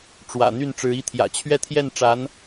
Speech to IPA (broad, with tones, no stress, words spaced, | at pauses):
ʈ͡ʂwä̰˨˩n̪y˥˩n ʈ͡ʂɻ̩˧˥i˥t̪ʰjä̰˨˩ t͡ɕʰɥɛ˥˧t̪ʰjɛ˥˩n ʈ͡ʂa˧˥n